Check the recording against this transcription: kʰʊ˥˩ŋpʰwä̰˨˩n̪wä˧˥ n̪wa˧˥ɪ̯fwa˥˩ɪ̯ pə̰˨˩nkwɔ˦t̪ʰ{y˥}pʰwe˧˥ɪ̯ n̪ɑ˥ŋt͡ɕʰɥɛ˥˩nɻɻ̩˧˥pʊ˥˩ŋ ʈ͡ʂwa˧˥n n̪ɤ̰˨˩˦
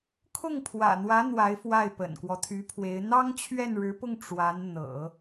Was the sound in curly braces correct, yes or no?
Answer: no